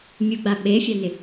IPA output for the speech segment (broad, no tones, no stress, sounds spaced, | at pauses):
mʲ u ɡ͡b a ɓ e fʲ a n ɪ